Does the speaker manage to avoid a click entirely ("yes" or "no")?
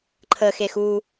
no